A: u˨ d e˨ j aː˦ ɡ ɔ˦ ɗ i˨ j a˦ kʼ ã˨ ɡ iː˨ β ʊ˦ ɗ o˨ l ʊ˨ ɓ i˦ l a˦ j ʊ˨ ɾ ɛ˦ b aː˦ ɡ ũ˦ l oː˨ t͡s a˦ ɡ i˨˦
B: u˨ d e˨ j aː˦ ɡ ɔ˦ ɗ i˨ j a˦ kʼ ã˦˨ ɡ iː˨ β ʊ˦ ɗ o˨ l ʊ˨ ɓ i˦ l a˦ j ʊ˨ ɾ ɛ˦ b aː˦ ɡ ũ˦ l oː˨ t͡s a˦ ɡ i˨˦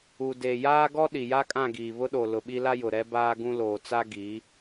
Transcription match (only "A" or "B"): B